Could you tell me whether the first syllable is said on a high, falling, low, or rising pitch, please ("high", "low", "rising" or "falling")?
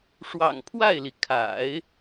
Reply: low